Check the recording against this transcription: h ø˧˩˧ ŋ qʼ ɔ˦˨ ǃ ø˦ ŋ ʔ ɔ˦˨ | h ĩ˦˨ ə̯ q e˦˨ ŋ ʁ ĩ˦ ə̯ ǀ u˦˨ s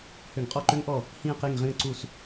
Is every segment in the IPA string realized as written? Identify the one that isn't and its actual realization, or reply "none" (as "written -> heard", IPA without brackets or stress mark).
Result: none